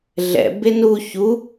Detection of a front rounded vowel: absent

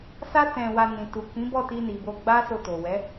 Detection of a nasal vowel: present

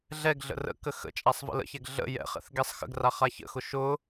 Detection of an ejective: present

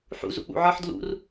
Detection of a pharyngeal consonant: present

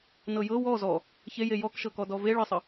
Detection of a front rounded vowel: absent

